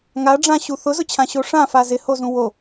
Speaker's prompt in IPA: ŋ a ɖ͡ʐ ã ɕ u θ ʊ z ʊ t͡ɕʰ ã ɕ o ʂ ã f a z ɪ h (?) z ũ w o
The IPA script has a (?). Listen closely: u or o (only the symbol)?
o